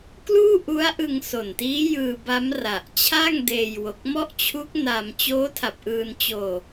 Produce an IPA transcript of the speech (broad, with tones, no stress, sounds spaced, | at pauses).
k l uː˥˩ ʔ u˦˥ a̯ ʔ ɯ˧ ŋ s o˨˩ n t iː˦˥ j ɯː˧ b a˦˥ m r a˨˩ ʔ t͡ɕʰ a˥˩ ŋ d eː˧ j w o˨˩ k̚ m ɔ˥˩ ʔ t͡ɕʰ u˦˥ k̚ n a˧ m t͡ɕ oː˦˥ tʰ a˨˩ p̚ ʔ ɯː˧ n t͡ɕ oː˧